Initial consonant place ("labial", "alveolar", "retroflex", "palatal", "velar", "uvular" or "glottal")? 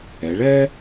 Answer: retroflex